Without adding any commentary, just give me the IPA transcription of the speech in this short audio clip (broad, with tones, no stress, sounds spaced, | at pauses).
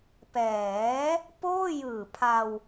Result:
p ɛː˩˦ | p oː˥˩ j ɯː˨˩ pʰ a˧ w